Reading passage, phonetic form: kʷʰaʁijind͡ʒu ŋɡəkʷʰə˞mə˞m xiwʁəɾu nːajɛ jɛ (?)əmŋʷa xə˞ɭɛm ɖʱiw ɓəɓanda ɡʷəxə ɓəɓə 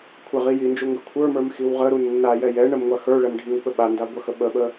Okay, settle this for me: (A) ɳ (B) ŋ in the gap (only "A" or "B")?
A